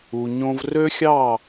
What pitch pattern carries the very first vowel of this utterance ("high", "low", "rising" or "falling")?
low